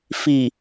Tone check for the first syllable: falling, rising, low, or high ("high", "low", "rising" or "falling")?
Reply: low